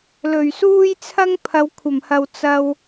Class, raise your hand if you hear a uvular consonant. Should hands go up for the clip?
no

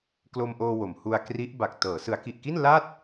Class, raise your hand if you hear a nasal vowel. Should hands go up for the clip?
no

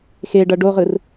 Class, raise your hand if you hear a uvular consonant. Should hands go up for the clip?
yes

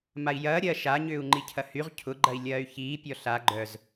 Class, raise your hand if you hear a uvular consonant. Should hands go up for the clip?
yes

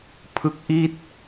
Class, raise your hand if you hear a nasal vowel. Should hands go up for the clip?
no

